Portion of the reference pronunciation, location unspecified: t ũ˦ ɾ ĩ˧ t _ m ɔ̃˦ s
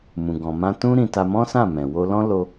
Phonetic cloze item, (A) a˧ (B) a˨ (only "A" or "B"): A